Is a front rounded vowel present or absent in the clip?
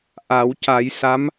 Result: absent